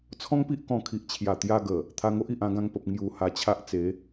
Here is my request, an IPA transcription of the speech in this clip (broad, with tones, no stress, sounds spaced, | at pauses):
t͡sʰ ɔ̃˦ ŋ p i˦ ʔ k ɔ̃˧ kʰ i˨ ʔ t͡ɕʰ j a˨˩ t̪ j a˧ ɡ ə˨˩ | t̪ʰ a˧ ŋ o˦ ʔ i˨ ʔ ã˧ ɡ ã˧ ŋ p ə˨ p̚ ŋ j u˨˩ h a˧ t͡ɕʰ a˦ ʔ t͡s e˨˦